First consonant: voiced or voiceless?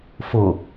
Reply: voiceless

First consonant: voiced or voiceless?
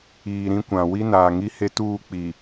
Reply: voiced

